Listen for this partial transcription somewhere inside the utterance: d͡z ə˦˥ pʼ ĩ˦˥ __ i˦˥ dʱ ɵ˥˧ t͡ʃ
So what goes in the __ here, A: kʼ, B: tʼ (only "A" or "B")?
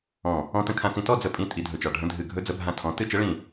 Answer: B